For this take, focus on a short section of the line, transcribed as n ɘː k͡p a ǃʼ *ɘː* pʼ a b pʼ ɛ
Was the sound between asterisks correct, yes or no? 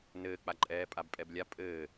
no